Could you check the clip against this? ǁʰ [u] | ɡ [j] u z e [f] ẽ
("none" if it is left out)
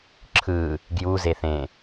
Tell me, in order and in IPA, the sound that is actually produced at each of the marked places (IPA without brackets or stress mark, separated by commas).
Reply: ɯ, j, θ